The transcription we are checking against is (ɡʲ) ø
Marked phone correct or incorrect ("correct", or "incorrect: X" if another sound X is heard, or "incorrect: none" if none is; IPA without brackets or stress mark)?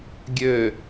correct